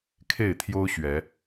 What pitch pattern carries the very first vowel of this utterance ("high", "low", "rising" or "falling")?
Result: falling